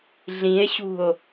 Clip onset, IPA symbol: ɮ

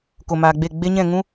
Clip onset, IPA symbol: k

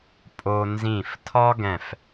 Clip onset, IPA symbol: pʼ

